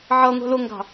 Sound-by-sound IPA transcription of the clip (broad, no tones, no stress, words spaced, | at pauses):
ʕʌ ŋʷɛ̤lʊŋɡɑ̤